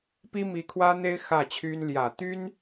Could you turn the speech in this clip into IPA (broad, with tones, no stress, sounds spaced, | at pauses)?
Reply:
p i˥ m i˧˥ kʰ w ä˥ n̪ e˥ ɪ̯ x ä˥˩ t͡ɕʰ y˥ n l j ä˨˩ t̪ y˥ n